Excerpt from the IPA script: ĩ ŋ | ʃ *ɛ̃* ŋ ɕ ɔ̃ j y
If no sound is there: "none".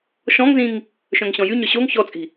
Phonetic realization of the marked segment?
œ̃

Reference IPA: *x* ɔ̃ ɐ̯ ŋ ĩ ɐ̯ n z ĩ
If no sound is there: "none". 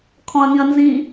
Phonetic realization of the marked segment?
kʰ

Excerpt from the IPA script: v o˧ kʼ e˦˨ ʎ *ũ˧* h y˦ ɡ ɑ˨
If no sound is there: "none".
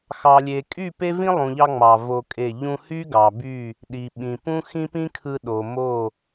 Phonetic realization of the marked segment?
ũ˧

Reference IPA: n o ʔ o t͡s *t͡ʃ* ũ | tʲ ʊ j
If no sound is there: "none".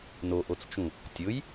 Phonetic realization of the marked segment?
t͡ʃ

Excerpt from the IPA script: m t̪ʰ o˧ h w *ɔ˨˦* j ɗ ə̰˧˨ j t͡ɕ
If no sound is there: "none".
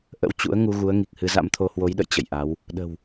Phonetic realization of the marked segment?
o˨˦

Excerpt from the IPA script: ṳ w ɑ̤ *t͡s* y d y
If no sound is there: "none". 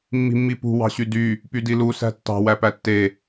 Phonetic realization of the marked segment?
ɕ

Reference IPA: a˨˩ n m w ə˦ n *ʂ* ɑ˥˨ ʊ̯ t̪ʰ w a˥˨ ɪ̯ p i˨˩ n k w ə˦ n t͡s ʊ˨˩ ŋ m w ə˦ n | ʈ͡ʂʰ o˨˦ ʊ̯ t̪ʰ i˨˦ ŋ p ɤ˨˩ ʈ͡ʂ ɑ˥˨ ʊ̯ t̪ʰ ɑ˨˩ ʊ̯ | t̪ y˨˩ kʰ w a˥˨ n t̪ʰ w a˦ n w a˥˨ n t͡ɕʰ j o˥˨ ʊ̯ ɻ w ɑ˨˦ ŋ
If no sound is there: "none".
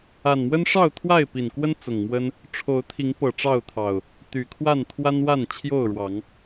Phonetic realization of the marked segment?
ʂ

